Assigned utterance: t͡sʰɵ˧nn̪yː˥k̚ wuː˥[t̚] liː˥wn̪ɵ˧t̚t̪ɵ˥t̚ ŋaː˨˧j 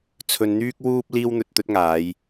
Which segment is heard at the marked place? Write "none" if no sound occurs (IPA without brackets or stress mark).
p̚